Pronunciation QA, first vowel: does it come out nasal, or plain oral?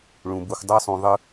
nasal